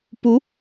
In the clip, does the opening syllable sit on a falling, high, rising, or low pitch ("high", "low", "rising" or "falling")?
rising